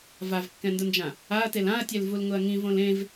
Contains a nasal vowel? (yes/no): yes